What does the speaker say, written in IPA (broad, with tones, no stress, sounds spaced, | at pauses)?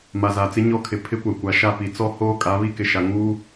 m a˨ z a˨ t͡s ɪ˦ ɲ ɔ˦ kʰ ɪ˨ pʰ ɪ˦ kʷ a˨ kʷ a˨ ʃ a˦˨ p i˨ t͡s ɔ˦ h oː˦ kʼ a˨˦ β i˦ k ɪ˨ ʃ a˨ ŋ uː˦